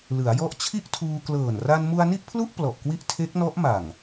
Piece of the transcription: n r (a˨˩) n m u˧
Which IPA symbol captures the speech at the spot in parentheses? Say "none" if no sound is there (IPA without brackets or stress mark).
a˧